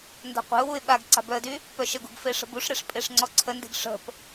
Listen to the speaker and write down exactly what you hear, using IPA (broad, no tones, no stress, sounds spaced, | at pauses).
n d a̤ qʷ e̤ ʊ̯ w u ɪ̯ ɓ a ɡ ǀ a̤ b œ ə̯ d y | p œ ʃ ə ɡ ṳ ɡ f e ʂ ə̤ b u ʂ ɾ e ʂ pʼ e ʂ ŋ͡ǀ ɔ ǀʰ ə n d e̤ ɡ ʂ ə̤ p